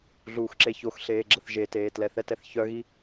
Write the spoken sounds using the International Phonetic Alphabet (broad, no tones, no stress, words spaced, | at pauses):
ɮuːxǁeçoxɬeː ɡ͡ǁəθʒeteː tlɛθɛtɛθ çœɣi